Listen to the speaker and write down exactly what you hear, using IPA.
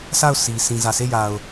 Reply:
sʰ a˦˨ ʊ̯ s i˨ sʰ ĩ˨ z ä˨ sʰ e˦˨ j a˨ ʊ̯

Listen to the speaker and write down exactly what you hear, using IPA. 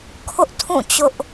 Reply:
kʰ ʊ˦ ʔ tʰ ũ˦˨ t͡ɕ ʊ˦ ʔ

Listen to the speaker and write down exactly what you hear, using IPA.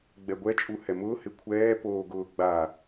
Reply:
ɡ͡b ɛ ɡʷ ɛ t͡ʃʼ u h ɛ m ʊː h ɪ kʷʰ ɛː p oː ɡ ʊː ɡ͡b a

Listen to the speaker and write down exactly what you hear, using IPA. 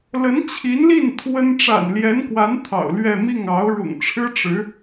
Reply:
l ə˧˥ n t͡ɕʰ i˧˥ n l i˥˩ n t̪ʰ w ə˥ n ʈ͡ʂ a̰˨˩ n l j ɛ˧˥ n k w a˧˥ n t̪ʰ ɑ̰˨˩ ʊ̯ l ɥ ɛ˥˧ m i˥˩ ŋ ɑ˧˥ ʊ̯ ɻ ʊ̰˨˩ ŋ ʈ͡ʂʰ ɻ̩˥ ʈ͡ʂ ɻ̩˧˥

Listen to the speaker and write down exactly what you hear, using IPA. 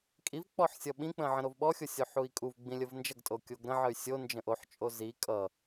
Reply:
kʼ i v k͡p ɔ ħ sʲ ʌ ɓ ĩ k͡p ə̃ ʕ ə̃ ɾ o v ɓ ɔ xʲ o sʲ o ħ u i̯ kʼ u v ɡ͡b ĩ lʲ ə v n d͡ʒ ʌ ɡ tʼ o kʲ o ɡ ɾ ə̃ ʕ ə y̯ sʲ o n d͡ʒ ə̃ ʔ o ħ t͡ʃʼ o z i kʼ ʌ

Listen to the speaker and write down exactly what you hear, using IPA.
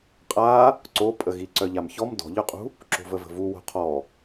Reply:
qʼ a | ǀ o pʼ ə ɣ i ǀ œ ʎ a m ç ɔ m d ɔ̤ ʎ œ qʼ ṳ | ǁ o̤ v ə v ə̤ v u w o̤ qʰ ɔ

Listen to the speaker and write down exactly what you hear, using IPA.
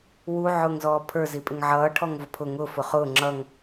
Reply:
w u ʕ ʊː ŋ z ɔː pʰ ə˞ z i pʼ ɪ ŋ ʕ ʌː ʈʰ ɔ ŋ v ʊ pʰ ʊ ŋ ʊ f ʊ χ ʊː ŋ͡ǁ ʌ ŋ

